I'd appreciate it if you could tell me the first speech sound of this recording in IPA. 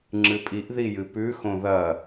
ŋ͡ǁ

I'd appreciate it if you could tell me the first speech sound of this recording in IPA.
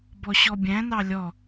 b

